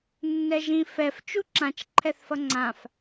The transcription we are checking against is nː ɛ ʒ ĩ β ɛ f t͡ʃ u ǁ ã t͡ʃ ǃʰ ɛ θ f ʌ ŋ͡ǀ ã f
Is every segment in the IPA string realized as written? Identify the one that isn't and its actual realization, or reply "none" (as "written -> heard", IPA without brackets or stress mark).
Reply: β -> f